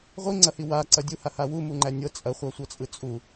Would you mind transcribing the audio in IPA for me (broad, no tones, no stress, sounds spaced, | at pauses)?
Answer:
ʁʷ i ŋ͡ǀ ɐ h i w a ǀ ɐ dʲ u h a h a w u m u ŋ͡ǃ æ nʲ ɤ t͡sʼ ɐ χʷ a sʷ ɤ t͡sʼ ɯ t͡sʼ u